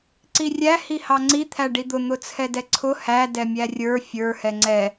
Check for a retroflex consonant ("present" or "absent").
present